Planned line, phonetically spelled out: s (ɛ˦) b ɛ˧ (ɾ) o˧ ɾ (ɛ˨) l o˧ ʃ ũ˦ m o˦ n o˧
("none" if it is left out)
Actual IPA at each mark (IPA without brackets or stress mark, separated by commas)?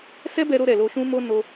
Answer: ɛ˦, ɾ, ɛ˨